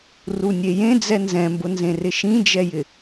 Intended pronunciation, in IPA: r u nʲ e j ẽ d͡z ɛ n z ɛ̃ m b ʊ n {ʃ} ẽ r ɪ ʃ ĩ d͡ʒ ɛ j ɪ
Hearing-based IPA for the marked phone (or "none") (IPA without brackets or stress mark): z